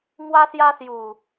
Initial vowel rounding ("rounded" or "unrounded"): unrounded